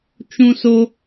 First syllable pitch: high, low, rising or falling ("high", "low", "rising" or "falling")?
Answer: high